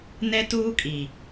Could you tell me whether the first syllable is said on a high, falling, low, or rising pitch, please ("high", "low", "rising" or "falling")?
high